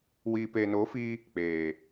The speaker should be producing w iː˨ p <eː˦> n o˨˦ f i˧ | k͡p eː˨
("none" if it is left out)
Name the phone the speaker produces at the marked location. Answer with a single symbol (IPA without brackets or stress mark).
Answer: eː˨